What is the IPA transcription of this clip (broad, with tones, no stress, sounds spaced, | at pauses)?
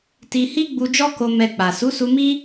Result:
t i˧ h i˦ ɡ͡b u˧ d͡ʒ ɔ˦ k o˧ m ɛ˧ k͡p a˨ s u˨˦ s u˧ m i˦